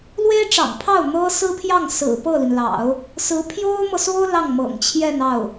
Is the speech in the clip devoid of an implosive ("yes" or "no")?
yes